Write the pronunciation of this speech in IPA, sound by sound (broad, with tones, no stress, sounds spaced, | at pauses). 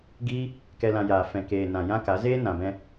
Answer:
ɡ iː˧ | k ɛ˨ l ã˨ j aː˨ f ɛ̃˨ k eː˨ n ã˨ j ã˦ k a˨˦ z eː˦ n ã˨ b ɛ̃˧